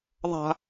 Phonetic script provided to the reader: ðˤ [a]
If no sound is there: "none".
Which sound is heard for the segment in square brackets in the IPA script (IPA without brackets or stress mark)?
a̤